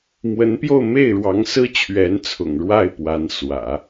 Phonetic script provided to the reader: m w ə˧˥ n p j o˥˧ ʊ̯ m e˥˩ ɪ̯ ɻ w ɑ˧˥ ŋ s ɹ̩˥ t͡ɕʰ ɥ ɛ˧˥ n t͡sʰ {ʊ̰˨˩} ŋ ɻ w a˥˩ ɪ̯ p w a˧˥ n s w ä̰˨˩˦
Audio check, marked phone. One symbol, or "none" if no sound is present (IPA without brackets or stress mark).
ʊ̰˨˩